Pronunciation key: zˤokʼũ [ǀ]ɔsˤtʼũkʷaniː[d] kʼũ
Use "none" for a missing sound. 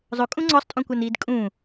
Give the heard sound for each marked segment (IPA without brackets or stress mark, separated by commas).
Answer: ŋ͡ǀ, d